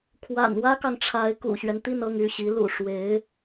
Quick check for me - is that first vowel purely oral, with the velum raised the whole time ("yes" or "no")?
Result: yes